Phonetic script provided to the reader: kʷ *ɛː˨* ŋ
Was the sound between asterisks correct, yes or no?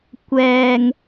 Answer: yes